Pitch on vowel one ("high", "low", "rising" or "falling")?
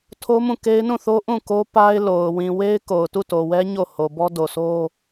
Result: high